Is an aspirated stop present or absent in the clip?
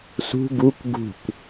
absent